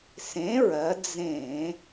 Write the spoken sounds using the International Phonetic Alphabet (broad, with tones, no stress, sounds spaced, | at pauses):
s ẽ˨˥ ɹ ɜ˩˧ d͡z ẽ˧˩˧